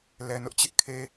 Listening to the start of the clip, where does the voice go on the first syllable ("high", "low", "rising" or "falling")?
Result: low